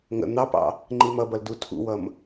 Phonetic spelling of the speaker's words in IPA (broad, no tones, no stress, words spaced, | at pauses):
ŋə̰ n̪ɑpɑ̰ | ŋ͡ǃimʌbʌl dutʰṵwʌm